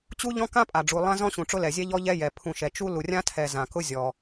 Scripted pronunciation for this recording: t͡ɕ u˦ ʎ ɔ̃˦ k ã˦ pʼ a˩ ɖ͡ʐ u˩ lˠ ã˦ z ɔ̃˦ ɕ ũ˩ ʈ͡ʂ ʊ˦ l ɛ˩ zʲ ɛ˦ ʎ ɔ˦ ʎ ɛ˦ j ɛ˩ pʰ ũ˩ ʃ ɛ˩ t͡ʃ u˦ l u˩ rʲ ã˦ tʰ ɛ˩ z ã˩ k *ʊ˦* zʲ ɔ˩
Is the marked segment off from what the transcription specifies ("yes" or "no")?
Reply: no